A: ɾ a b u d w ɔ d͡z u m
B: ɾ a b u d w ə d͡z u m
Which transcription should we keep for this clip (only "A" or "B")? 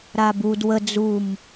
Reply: B